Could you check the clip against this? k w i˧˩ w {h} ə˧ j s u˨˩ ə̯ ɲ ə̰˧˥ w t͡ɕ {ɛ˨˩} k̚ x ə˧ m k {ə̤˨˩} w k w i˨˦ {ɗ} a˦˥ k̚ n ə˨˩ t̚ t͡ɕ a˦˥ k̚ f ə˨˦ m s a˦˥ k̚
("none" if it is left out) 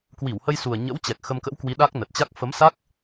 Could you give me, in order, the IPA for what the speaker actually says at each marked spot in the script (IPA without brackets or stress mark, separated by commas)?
h, ɛ˨˩, ə̰˧˥, ɗ